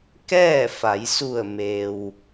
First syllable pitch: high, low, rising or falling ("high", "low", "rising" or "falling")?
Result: falling